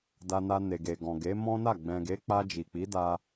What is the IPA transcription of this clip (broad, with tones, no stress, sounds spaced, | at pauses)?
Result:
d a˧ n a˧ n e˨ ɡ e˨ ɡ ɔ̃˨ ɡ e˨˦ m ɔ̃˦ n a˦˨ ɡ͡b ɛ̃˨ ɡ e˨˦ k͡p a˧ d͡ʒ i˨ k͡p i˨˦ d a˧